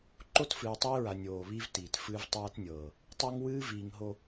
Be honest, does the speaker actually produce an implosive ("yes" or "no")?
no